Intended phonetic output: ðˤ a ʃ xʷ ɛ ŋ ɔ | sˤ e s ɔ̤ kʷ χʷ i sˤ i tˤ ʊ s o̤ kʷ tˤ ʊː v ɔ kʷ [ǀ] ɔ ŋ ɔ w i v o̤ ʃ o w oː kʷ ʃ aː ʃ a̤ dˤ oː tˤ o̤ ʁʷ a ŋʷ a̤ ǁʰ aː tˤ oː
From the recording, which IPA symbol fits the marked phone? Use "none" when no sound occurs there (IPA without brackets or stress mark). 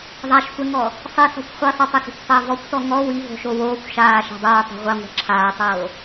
t